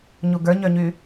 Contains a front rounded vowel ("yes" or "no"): yes